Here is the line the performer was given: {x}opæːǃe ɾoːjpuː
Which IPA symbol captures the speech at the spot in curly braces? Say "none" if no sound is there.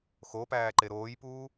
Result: x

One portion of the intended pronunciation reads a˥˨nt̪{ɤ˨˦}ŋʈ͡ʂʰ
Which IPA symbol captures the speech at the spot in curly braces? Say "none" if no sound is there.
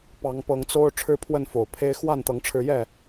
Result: ɤ˨˦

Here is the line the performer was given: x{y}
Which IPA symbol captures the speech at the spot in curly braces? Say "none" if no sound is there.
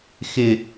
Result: ɪ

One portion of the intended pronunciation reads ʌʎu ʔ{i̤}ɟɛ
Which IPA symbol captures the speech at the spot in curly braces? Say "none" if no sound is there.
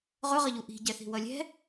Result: i̤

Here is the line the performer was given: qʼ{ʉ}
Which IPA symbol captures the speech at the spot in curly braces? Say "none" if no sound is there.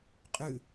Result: ʉ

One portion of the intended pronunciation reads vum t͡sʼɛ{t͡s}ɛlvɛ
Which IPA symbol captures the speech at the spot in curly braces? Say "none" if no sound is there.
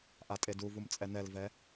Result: n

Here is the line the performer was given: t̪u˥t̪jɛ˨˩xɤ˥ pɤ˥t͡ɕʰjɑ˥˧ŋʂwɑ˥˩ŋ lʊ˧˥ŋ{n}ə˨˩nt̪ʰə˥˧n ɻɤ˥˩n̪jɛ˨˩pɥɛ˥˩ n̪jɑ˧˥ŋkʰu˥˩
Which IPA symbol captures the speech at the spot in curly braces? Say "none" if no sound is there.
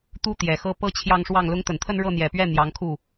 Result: t̪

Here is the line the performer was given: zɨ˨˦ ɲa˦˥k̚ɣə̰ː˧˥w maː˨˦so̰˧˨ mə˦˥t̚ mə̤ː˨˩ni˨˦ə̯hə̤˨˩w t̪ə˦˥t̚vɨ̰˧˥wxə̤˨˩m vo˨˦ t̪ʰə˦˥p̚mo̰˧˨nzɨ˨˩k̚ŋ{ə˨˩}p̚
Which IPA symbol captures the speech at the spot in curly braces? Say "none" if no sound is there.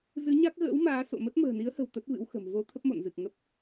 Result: ə˦˥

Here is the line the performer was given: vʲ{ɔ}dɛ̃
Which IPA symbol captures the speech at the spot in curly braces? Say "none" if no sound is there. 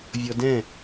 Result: ɔ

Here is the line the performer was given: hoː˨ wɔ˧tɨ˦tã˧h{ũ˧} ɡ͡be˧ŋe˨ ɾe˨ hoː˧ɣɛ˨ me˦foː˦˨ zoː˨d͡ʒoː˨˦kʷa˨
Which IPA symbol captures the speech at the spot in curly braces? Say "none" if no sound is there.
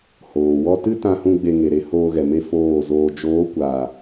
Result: ũ˧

